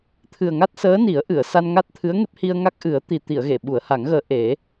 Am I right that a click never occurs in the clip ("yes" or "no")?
yes